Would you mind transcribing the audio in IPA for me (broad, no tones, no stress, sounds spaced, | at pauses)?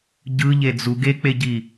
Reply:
ɟ ɯ ʎ e d͡z u ɡ e k͡p e ɟ i